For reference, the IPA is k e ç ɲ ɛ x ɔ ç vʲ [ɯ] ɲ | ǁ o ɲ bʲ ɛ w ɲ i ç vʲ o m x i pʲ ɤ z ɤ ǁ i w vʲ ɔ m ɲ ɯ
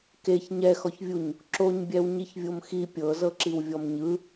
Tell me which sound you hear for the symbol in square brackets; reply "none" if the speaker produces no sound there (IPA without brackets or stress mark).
u